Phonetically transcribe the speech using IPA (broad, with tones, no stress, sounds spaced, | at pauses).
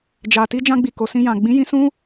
d͡ʒ a˨ t i˧ d͡ʒ ã˧ ɡ͡b i˨ k o˨ s ĩ˧ j ã˨ ɡ͡b ĩ˨˦ j ĩ˧ s ũ˦